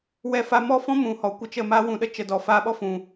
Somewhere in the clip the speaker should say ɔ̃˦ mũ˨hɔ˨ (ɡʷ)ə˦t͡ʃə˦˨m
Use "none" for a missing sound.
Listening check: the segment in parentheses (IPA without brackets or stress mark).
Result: kʷ